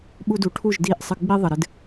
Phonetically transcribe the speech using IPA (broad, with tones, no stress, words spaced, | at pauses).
ɓu˧du˩ʈʰu˥˩ʒ di˥˩ʔ sˤɨ˧ɡ͡bi˥ ðˤə˩ɾɨ˥d